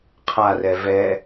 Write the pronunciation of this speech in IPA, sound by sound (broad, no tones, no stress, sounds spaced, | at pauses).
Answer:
qʰ a r ɛ v ɛ